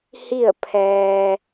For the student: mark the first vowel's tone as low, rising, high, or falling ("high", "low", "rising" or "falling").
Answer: falling